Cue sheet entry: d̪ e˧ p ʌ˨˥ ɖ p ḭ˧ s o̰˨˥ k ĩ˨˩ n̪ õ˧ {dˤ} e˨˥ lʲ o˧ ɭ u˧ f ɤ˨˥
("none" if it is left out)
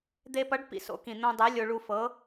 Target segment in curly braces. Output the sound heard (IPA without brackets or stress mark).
dˤ